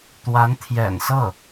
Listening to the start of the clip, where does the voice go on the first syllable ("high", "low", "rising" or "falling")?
rising